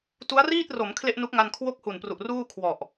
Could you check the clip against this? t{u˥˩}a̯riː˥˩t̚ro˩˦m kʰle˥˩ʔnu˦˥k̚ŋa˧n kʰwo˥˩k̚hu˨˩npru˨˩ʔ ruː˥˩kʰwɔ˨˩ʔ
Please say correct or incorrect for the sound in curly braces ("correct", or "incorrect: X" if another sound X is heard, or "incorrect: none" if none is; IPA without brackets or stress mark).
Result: incorrect: u˦˥